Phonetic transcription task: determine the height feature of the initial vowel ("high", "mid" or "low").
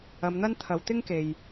low